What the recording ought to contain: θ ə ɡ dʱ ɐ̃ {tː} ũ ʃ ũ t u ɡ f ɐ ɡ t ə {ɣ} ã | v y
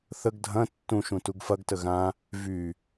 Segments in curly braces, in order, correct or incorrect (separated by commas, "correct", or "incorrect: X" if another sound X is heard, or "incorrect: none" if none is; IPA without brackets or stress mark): correct, correct